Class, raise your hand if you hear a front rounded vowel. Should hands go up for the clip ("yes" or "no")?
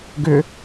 yes